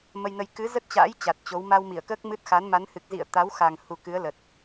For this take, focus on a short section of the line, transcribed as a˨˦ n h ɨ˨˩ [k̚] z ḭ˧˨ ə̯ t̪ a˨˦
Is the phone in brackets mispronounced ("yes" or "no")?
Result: no